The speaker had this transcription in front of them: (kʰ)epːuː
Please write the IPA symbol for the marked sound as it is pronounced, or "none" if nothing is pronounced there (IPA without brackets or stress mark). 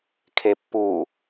kʰ